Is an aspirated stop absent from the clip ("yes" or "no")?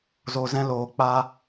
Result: yes